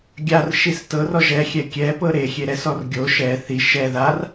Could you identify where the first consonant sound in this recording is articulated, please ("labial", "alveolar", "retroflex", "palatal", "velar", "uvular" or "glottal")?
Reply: velar